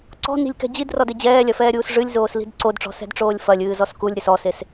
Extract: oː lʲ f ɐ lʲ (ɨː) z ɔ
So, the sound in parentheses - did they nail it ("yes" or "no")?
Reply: yes